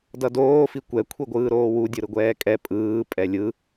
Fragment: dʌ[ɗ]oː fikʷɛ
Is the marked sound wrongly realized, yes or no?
yes